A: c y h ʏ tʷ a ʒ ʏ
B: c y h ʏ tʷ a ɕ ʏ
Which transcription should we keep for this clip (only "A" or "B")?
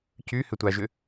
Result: A